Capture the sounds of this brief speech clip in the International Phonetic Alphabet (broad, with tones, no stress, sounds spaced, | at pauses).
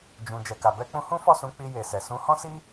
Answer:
d͡ʒ ũ˨ d͡ʒ ɛ˨ k a˨ b ɛ˧ k͡p ũ˧ h ũ˦ f ɔ˦˨ s ũ˨˦ k͡p i˧ j e˨ s ɛ˨ s ũ˨˦ h ɔ̃˦ s i˦